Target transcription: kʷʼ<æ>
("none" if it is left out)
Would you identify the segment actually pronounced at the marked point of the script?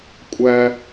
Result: æ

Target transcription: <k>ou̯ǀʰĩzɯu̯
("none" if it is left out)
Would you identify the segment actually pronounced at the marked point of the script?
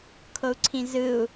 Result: kʰ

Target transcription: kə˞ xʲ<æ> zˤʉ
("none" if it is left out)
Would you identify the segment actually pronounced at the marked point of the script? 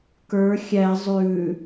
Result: æ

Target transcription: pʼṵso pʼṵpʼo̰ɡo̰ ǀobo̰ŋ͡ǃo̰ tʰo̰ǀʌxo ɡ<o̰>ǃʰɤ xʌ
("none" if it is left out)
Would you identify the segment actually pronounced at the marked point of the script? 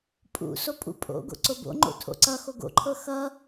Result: o̰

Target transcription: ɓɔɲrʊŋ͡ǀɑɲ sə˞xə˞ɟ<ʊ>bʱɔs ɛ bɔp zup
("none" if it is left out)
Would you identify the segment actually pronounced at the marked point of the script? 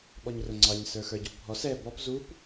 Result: u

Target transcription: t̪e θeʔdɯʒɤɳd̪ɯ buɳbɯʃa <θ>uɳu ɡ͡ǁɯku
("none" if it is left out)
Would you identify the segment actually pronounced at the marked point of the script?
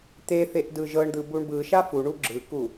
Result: f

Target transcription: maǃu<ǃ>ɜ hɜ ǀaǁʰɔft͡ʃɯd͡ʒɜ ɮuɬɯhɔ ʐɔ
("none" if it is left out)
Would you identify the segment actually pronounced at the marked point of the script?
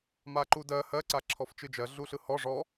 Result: d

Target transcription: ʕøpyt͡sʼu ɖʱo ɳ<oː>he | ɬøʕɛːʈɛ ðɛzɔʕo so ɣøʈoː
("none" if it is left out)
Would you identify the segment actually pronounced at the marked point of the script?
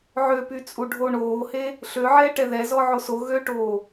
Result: oː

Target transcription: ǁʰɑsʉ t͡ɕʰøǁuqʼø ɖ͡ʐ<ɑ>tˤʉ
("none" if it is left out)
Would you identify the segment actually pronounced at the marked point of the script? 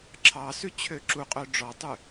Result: ɔ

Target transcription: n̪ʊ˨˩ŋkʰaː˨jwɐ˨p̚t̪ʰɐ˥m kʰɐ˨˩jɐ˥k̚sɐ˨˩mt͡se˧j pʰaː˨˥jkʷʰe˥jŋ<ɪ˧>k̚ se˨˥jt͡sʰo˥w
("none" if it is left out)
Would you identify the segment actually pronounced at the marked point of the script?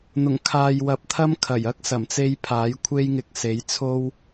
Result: ɪ˧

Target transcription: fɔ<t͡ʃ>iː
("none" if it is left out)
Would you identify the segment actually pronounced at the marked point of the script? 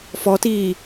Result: t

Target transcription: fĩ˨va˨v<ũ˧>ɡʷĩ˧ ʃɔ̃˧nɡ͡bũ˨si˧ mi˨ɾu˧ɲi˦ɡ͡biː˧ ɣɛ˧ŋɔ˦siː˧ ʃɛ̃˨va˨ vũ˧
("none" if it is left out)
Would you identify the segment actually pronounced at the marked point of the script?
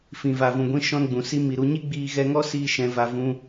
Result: ũ˨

